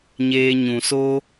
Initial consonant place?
palatal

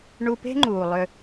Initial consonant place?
retroflex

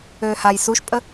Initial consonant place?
glottal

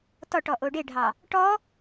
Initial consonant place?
alveolar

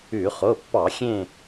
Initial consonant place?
uvular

